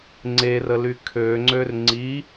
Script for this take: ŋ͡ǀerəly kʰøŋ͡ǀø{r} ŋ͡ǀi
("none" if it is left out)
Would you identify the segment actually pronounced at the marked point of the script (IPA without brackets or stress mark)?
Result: r